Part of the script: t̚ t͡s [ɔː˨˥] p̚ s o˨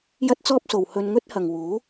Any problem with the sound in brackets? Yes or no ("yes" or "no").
yes